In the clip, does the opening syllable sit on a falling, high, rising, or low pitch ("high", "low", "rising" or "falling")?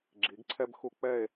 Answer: rising